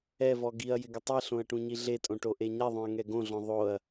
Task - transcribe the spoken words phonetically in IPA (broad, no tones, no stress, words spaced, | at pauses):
ɛvɔ ɡiɐ̯jɪɡɪ tˤiɬõɐ̯ʈũɲi ɮetʼõʈoʔe ɲɛðˤõɐ̯ŋɛ ɡõɮɔ̃ ðˤoɐ̯